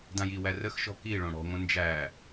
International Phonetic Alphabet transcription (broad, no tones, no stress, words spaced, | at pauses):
dãjiwæ rəxʃɔ̤ ki ɭõɽɔ̤ŋʷə̃ nd͡ʒæ